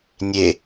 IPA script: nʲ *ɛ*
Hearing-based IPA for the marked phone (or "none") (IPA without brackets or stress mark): e